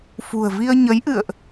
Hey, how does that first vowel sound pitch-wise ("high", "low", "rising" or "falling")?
low